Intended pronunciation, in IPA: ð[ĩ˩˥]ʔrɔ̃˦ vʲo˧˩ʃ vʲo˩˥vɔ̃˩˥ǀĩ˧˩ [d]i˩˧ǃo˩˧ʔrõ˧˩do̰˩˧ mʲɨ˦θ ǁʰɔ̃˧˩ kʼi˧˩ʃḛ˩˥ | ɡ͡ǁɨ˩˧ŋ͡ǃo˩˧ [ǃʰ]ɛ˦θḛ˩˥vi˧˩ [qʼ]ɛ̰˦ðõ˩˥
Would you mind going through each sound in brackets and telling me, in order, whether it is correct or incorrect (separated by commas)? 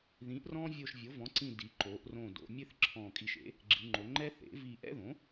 correct, correct, incorrect, incorrect